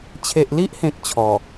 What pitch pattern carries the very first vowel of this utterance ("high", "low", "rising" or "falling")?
low